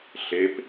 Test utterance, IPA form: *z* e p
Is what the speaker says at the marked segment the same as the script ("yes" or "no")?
no